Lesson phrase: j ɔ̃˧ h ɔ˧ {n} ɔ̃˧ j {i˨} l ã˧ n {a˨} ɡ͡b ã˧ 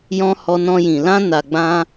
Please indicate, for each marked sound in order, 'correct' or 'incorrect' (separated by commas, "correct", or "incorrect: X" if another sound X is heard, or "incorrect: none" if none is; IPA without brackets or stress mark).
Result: correct, incorrect: ĩ˨, correct